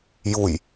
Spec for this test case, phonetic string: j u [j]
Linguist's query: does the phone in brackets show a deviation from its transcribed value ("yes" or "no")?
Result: no